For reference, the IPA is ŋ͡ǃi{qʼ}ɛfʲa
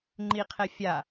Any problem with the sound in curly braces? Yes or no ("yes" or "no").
yes